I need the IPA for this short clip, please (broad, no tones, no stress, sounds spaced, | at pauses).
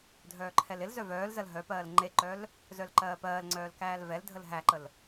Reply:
dʱ œː ǃʰ ɛ l ɪ l z œ v œː l z ɜ l ɦ œ p ɜː l ŋ͡ǃ e ǃ œ l | z œ l ǃ ɜː p ɜː l ŋ͡ǀ œː l k æː l v ɛ l dʱ ə l ɦ æ ǃ ə l